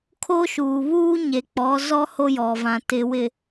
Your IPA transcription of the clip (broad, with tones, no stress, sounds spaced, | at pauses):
kʰ o˦ ʃ uː˨ β uː˦ ɲ e˨ k͡p ɔ˨˦ z ɔ˦ h o˦ j ɔ˨ v ã˨ t ɪ˨ w ɪ˨